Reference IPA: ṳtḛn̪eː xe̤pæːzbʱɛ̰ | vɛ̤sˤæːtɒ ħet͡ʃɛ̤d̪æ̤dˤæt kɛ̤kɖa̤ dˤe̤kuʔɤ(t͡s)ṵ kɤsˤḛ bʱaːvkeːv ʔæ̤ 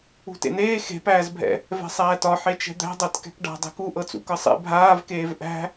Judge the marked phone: correct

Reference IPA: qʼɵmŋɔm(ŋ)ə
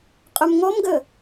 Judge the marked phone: incorrect: ɡ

